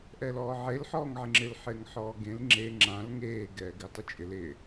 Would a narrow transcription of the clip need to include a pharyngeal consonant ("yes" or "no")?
yes